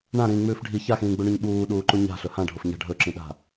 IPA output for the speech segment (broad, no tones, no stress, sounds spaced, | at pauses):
ɳ ã ɾ ĩː ŋ͡m ʉː f ɖʱ i ç a x ĩː ɡ͡b u ɳ ʉ ɲ ɓ uː ɗ uː ǃ u ɲ a̤ ɬ ɵ h ã ɖʱ o f ɲ a̤ ɖʱ ɵ ǁ ĩ ɗ a̤